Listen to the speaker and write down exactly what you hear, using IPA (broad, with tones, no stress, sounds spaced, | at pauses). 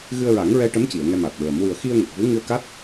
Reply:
ɣ ɨ˧ ə̯ ɹ a˨˩˦ ŋ ɹ ɛ˧ ʈ ə˧˥ m c i˨˩˨ ə̯ ŋ ɛ˧ m a˨˩ t̚ ɹ ə˨˩˦ m w ɨ˨˩ ə̯ x i˧ ə̯ ŋ ə˨˩ k̚ v u˧˥ ŋ ɨ˧ ə̯ k a˦˥ t̚